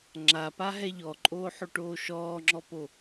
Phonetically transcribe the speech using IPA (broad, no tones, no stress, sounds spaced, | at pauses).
ŋ͡ǁ a p a ɦ ɛ ʎ ɔ ǃʼ oː ħ o ʈ oː ʃ ɔː ŋ͡ǁ ɔ p o